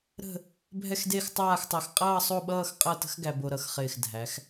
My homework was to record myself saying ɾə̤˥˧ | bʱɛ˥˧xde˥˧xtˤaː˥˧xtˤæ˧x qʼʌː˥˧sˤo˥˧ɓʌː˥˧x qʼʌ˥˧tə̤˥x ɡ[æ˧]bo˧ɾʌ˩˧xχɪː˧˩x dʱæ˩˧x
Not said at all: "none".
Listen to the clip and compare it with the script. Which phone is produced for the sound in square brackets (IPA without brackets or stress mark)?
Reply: æ˧